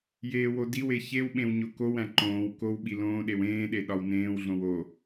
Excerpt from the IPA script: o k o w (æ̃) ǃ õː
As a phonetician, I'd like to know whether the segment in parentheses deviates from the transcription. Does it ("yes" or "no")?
no